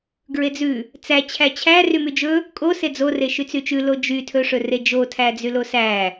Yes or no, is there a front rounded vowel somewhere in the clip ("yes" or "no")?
yes